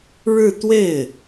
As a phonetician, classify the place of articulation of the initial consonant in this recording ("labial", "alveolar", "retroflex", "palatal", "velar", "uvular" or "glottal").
retroflex